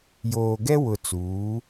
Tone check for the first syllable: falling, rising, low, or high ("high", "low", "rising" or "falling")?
low